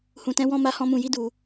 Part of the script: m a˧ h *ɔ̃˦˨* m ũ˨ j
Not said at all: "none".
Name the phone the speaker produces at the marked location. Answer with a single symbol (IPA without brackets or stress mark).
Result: ɔ̃˧